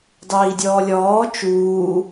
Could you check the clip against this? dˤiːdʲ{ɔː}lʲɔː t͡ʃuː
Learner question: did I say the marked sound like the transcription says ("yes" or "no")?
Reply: yes